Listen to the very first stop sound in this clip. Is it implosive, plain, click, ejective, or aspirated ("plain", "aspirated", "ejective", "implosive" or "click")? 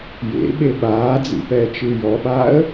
implosive